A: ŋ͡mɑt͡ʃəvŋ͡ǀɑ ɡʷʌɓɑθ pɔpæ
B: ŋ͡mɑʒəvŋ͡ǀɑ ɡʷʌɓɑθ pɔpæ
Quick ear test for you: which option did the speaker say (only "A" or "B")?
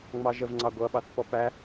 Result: B